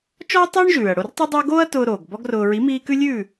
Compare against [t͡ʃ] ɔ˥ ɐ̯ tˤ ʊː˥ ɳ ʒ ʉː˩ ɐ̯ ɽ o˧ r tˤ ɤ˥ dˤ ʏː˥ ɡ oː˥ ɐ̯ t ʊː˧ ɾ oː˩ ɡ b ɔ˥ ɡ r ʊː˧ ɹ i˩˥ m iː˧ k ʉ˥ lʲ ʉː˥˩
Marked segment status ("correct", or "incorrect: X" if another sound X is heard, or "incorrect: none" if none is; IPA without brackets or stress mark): correct